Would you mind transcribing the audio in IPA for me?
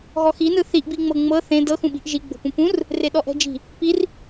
ɣɔxinɯ θiʔbiŋ͡mɤ ŋ͡mɤ θẽ dɤxũɓi̤ʔ ʒiɡ͡bo̤pũ pũr | reɗɔʔɛ̤d͡ʒi̤ | pir

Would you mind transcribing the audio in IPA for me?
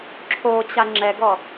ǁʰot͡ɕa ŋ͡ǁɛɡɔ

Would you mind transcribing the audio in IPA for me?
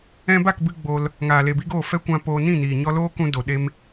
ɛ̃˧ba˦˨k bɨ˦ ɡ͡bo˧l | ŋaː˨le˨bi˦ɡoː˦˨ fɛ˦kʷã˧ poː˧nĩ˦˨ niː˨ɲɔ˧loː˦kũ˧ do˨ɗe˦m

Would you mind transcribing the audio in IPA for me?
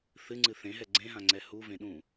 θɨŋ͡ǀɨ θẽɦɛ ɡ͡ǀẽɦãŋ͡ǀɛ huvẽɗũ

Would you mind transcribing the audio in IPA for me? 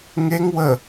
ŋeŋ wə

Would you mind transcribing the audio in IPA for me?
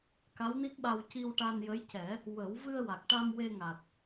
ka˧˥wni˦˥k̚ɓa˧w ci˧wʈa˧njə˧˥jcɛ˨˩˦ | wə˨˩˦w vɨ˧ə̯wa˨˩k̚ʈa˧m we˧ŋa˨˩t̚

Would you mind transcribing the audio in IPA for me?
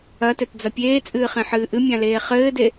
ɐtɛtd͡zɐ pʲeːt͡sʼɨːχẽħɨː ʔɨmʲãleː χɘːde

